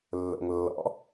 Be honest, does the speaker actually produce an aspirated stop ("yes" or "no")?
no